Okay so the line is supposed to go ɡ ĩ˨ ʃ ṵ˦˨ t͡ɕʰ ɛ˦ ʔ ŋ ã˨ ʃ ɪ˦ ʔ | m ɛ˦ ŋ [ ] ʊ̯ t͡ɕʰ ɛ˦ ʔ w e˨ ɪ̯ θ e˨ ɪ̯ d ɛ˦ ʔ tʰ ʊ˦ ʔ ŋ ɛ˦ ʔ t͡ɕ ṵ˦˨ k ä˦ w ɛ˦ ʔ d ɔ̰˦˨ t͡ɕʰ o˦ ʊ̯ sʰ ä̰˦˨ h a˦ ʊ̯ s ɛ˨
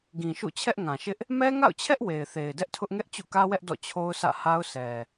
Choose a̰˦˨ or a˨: a̰˦˨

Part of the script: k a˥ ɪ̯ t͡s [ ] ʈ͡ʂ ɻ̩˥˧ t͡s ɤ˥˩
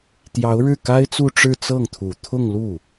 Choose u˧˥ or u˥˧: u˥˧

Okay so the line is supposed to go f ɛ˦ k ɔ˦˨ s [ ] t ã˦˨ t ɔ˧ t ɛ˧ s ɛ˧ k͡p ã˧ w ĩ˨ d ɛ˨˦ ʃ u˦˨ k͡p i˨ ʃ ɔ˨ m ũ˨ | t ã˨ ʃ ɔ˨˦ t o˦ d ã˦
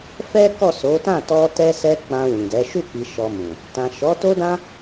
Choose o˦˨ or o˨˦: o˨˦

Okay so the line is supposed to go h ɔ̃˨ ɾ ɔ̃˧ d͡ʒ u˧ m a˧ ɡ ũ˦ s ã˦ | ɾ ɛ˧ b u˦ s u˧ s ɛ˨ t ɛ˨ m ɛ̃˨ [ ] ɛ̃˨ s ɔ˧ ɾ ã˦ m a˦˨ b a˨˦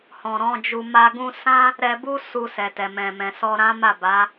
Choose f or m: m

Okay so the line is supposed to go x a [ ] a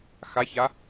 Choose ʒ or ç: ç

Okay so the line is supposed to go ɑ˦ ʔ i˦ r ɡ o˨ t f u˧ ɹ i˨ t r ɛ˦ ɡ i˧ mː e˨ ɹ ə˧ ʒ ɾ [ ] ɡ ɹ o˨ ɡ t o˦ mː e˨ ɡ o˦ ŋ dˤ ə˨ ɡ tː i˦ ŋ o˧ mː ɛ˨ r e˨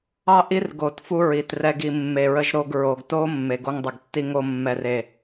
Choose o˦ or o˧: o˧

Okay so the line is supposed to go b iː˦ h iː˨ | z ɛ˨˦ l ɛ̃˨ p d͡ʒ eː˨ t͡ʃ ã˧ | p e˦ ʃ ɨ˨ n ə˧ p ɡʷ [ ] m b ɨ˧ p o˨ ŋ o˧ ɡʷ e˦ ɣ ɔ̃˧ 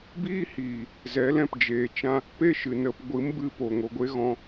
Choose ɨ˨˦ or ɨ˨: ɨ˨˦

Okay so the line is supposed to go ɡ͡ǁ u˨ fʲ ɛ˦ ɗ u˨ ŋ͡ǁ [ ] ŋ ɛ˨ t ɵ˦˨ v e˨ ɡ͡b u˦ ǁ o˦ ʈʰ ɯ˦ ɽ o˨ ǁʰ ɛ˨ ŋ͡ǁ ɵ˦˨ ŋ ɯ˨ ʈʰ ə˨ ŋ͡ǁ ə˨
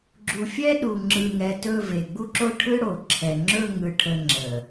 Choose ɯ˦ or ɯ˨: ɯ˨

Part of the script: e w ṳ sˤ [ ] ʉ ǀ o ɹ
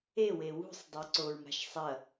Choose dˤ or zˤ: dˤ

